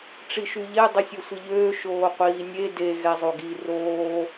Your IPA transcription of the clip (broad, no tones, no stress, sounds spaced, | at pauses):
ʈ͡ʂ i ʃ y ʎ ɛ dˤ ɛ sʲ ø sʷ i ʎ øː ʃ oː qʷ iː nʲ e d e ɣ ɛ zˤ o ɡ i r oː